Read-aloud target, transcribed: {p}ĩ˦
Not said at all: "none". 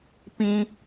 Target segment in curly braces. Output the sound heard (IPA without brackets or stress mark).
p